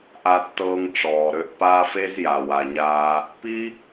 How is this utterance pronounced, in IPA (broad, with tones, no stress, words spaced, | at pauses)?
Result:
ʔa˧tːɤː˧ŋ ʈ͡ʂɔː˨ɾø˧ʔpaː˦f e˦zja˨ wa˨ɲaː˧ | pi˦